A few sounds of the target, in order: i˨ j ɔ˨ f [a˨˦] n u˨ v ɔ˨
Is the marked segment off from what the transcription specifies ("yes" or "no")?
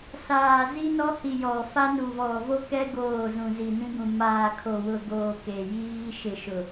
yes